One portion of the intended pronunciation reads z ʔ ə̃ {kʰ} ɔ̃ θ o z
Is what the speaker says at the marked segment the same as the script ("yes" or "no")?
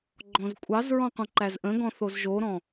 no